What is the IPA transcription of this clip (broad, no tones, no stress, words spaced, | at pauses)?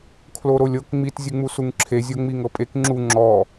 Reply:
kʰloɾolʲɤk ŋ͡mit zʲɯŋ͡musuŋǁʰe zʲɤŋ͡miŋɤpʼek ŋ͡ǁu ŋ͡ǁɔ